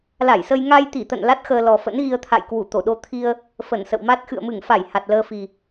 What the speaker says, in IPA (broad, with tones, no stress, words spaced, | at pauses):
la˧˩jsə˧j ŋa˧jt̪i˧˩t̪ə̰˧˨n la˦˥t̚xəː˧lɔ˨˩ fə̰˧˥nɣi˧ə̯t̪ʰa̰˧˨j kwu˧˩t̪o˧˩ɗo˧t̪ʰi˧ə̯ | fə˧˩nsə̰˧˨wma˦˥t̚ xɨ̰˧˨ə̯mɨ˧˩ŋfa˧˩j ha˨˩t̚ləː˧fi˨˩